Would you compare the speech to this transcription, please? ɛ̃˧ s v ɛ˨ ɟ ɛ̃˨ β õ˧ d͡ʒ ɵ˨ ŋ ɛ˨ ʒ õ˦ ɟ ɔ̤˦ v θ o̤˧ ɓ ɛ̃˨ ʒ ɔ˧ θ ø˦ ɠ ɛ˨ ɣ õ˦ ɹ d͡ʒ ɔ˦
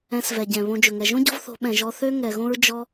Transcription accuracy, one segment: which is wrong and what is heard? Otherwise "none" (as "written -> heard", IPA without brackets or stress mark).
ɠ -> ŋ